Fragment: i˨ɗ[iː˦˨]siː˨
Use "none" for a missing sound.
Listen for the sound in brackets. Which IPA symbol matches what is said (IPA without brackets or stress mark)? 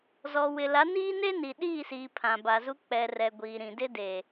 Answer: iː˦˨